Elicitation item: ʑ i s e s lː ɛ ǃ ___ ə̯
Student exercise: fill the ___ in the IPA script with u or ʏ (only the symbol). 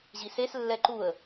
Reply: u